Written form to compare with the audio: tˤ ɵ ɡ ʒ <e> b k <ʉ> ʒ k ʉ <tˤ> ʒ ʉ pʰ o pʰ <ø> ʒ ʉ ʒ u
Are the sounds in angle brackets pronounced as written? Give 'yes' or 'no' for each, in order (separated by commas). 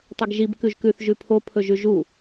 no, yes, no, no